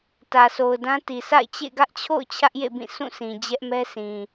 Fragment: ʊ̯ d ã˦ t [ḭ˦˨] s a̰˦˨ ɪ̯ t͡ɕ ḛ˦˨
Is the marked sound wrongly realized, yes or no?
yes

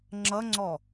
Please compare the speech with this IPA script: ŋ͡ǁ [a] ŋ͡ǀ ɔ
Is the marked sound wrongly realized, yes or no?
yes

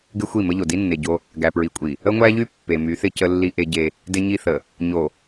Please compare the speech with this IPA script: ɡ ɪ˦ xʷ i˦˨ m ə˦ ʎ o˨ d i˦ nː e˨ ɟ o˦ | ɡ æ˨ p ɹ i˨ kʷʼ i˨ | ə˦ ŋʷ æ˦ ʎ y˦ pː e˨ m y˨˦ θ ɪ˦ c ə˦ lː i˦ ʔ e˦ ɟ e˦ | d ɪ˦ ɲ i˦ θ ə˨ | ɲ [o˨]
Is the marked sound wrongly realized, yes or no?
no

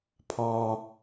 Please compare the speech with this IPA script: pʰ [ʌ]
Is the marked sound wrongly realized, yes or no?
yes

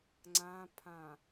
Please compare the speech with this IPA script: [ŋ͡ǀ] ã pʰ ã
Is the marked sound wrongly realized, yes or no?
no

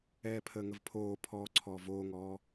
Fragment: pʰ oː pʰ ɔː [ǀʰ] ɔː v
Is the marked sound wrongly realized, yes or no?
no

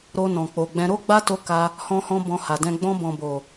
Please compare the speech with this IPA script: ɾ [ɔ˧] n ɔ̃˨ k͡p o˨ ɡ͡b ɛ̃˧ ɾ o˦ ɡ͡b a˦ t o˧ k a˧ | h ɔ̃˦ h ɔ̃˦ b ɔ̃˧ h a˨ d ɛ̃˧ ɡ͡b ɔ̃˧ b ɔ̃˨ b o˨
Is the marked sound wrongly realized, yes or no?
yes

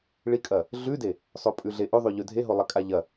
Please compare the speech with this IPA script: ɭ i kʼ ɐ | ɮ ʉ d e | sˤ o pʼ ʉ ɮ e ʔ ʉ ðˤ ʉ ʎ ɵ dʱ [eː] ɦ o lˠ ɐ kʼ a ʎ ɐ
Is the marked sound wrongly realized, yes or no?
yes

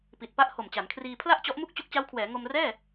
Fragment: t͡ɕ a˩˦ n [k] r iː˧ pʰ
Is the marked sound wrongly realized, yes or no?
yes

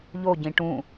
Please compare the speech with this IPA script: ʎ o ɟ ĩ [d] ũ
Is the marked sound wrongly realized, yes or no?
yes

